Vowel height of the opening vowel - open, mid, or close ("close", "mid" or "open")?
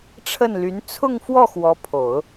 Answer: mid